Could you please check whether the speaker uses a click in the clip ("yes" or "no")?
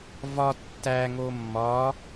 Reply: no